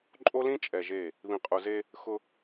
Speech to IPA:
ǃʼ o˦ l ĩ˦ t͡ʃʼ ɛ˨ ʒ e˦˨ | β ĩ˨ qʼ u˨ z e˦ | x ʊ˦

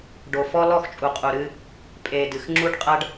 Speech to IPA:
ɖ o˨ f ɔ˦ l ɔ˦˨ x t͡ʃʼ u˨ qʼ u˨ ɾ ɨ˦ | pʼ e˨ d ɨ˨ x ŋ͡ǁ u˦ ɖ qʼ ɐ˦ ɖ

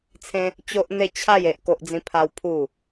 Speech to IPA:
t͡sʰ ẽ˦ | t͡ɕ o˦ ʔ n̪ e˥˧ t͡ɕʰ a˥˧ j e˦ ʔ k o˦ ʔ d͡z ĩ˦ pʰ a˦ w pʰ u˥˧

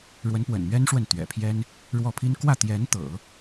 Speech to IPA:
ɻ w ə˧˥ n p w ə̰˨˩ n m ɥ ɛ˥ n ʂ w ə˥˩ n t̪ ɥ ɛ̰˨˩ pʰ j ɛ˥ n | ɻ w ɔ˥˩ pʰ i˥ n k w ä˥˩ t̪ j ɛ˧˥ n t̪ ɤ̰˨˩˦

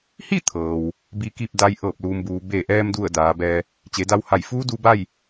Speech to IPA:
h i˥˨ t̪ʰ ɤː˩ w | b i˧ k i˥˨ p̚ d a˧˥ j ʔ ɤː˧˩ p̚ l uː˩ m b uː˩ b e˧˩ ʔ ɛː˧ m d u˧˩ ə̯ d aː˩˧ b ɛː˧ | t͡ɕ e˩˧ d a˧ w h a˧˩ j f uː˧˥ d uː˧ b a˥˨ j

